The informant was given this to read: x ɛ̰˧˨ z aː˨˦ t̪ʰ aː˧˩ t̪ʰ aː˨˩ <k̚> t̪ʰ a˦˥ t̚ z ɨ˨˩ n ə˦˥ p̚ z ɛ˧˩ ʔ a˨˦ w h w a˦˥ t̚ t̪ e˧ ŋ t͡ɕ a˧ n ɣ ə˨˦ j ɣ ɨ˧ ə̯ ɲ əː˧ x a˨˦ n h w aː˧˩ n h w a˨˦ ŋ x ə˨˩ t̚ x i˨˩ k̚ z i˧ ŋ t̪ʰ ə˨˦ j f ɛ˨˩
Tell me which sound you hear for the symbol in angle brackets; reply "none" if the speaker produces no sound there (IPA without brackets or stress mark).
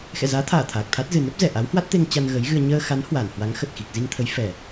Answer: k̚